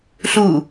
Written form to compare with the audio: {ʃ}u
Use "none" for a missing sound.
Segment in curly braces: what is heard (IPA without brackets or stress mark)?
ɬ